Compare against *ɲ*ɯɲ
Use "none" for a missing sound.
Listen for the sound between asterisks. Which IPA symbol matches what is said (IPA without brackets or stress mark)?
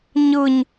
ɲ